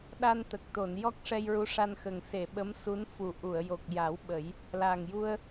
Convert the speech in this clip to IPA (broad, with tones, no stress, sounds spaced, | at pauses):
ɗ a˧ n t̪ ə˨˩ k̚ t̪ o˨˩˨ n j ɔ˦˥ k̚ ʂ ɛ˧ j ɹ u˧˥ ʂ a˧ n x ə˨˩ ŋ s e˨˩˨ ɓ ə˧˥ m s u˧˥ n f u˨˩ ʔ u˨˩˨ ə̯ j o˨˩ k̚ j a˨˩˦ w ɓ ə˨˩˦ j | l a˨˩ ŋ j u˧ ə̯